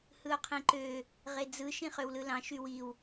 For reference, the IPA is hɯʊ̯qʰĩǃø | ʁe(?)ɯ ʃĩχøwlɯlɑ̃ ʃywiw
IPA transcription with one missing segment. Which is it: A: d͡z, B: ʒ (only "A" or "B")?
A